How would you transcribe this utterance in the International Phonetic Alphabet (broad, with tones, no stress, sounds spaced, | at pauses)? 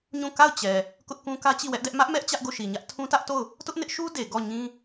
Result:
ɲ ũ˦˨ k a˦˨ ʊ̯ t͡ɕ ɛ˨ | k ʊ˦ ʔ k ũ˦ k ä˦ t͡ɕ i˦˨ w ɛ˦ ʔ d ɛ˦ ʔ m ä˦ ʔ m ɛ˦ ʔ t͡ɕ ä˦ ʔ ɡ o˦˨ ʃ i˨ ɲ ä˦ ʔ tʰ ũ˦ t ä˦ ʔ t o˦˨ ʊ̯ | t ʊ˦ ʔ n ɪ˦ ʔ ʃ u˦ d e˨ ɡ ɔ˦˨ ɲ ĩ˦